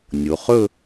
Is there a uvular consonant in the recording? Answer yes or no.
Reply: yes